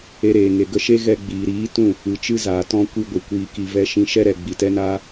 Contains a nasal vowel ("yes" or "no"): yes